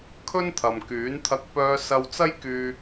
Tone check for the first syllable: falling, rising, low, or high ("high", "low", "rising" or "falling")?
high